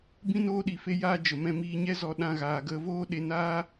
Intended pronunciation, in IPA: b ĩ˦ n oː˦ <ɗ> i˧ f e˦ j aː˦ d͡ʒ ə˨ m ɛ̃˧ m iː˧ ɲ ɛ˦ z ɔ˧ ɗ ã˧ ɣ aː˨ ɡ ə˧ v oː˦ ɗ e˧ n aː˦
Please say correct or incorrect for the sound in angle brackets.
correct